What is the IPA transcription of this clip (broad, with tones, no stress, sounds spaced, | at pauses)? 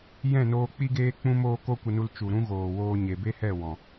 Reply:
j ɛ̃˦˨ n oː˧ k͡p i˦ ɡ eː˦ k͡p ũ˦ m oː˦ k o˦ kʷ ə˧ n u˧ l t͡ʃ u˨ ɾ ũ˦ ɣ oː˨ w oː˧ ɲ e˨ b e˦ h ɛ˦˨ w ɔ̃˨